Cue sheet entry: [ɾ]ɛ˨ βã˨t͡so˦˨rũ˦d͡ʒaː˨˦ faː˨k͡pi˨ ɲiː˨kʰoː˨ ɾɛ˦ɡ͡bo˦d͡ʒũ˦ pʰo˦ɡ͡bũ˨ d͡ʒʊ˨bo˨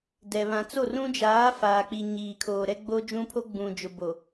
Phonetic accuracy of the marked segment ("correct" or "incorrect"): incorrect